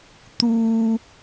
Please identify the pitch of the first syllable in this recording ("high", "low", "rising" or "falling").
low